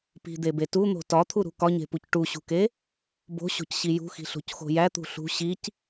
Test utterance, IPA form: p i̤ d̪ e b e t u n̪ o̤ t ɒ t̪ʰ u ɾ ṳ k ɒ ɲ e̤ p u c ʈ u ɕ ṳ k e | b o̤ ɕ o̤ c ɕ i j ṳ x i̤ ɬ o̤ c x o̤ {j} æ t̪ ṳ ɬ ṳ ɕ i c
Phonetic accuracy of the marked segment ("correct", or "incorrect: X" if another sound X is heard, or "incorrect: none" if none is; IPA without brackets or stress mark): correct